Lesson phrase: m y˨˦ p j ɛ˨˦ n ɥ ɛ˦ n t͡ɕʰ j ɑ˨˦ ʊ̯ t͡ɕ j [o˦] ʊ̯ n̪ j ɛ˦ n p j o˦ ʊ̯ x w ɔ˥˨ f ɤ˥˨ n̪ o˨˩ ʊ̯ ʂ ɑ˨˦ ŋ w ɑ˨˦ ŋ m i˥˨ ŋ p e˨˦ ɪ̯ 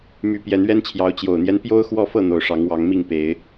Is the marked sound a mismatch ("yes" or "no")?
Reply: yes